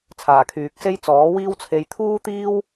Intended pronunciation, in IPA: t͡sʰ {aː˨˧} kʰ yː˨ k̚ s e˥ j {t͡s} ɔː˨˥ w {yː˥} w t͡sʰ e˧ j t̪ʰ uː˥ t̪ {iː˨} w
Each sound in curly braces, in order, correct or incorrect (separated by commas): incorrect, correct, incorrect, incorrect